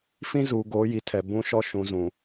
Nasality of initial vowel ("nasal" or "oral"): nasal